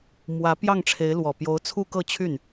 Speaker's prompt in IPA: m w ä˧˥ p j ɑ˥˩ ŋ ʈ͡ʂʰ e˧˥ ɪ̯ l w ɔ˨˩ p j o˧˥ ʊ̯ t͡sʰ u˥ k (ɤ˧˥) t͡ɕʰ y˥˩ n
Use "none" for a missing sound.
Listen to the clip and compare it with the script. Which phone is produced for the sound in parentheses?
ɤ˥˧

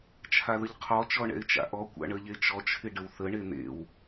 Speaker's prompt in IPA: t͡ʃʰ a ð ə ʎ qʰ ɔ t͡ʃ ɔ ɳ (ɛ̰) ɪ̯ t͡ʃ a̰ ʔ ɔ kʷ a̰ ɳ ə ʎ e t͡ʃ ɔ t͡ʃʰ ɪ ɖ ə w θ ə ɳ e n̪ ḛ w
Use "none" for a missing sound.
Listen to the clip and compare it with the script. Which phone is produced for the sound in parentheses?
ɛ̰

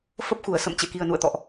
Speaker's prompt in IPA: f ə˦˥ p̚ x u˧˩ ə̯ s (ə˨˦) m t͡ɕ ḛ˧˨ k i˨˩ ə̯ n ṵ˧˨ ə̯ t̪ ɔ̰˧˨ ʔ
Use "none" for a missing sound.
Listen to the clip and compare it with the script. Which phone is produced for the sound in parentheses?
ə̰˧˨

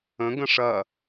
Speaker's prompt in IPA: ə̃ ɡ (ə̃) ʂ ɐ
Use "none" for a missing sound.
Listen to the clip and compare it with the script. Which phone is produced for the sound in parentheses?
ə̃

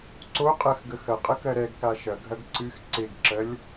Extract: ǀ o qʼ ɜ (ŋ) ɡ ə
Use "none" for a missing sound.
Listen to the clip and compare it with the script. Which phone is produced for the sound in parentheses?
x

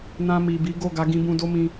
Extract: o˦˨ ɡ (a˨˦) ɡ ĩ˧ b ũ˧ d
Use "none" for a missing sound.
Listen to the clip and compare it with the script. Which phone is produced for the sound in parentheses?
a˨˦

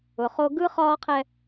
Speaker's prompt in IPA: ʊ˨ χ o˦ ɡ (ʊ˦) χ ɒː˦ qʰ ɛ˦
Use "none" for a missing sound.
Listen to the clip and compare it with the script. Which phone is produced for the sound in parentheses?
ɯ˦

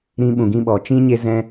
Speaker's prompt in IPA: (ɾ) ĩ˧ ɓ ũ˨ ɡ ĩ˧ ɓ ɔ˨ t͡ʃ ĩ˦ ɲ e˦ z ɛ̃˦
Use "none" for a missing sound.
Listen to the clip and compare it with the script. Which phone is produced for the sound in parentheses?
ɾ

